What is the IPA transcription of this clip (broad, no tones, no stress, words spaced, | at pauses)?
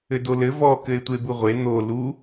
ɘdolɘ vɔ kɘe̯tʷebuʁʷe n̪o lu